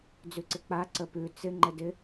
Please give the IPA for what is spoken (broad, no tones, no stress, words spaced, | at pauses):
d͡zʉǀɪk͡pa ǀəpʉ t͡sɪ ŋ͡ǃɘdɪ